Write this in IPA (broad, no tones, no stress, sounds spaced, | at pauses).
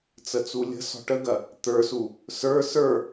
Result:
t͡s ə t͡s u lʲ ə̤ s ɔ̤ ʈ ə ɡ ɐ | t̪ ə˞ s u | s ə˞ s ə˞